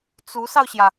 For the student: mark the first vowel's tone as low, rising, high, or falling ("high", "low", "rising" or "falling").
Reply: rising